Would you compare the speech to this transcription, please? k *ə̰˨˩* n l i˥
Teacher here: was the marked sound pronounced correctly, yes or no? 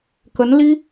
no